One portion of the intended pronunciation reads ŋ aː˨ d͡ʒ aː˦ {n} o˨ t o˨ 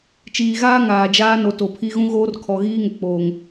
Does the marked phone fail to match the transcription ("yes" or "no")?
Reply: no